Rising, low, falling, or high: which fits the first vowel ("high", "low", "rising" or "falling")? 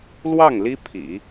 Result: falling